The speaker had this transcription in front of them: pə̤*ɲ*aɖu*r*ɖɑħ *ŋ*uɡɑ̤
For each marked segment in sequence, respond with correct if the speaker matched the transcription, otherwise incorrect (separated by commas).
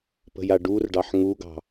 incorrect, correct, correct